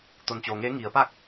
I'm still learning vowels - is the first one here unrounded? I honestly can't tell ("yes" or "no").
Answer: no